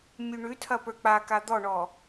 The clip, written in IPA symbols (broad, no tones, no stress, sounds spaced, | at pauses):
mʲ ʉ ɳ ʉ tʰ ɐ p ə˞ k͡p a k a d̪ ɔ ɳ ɔ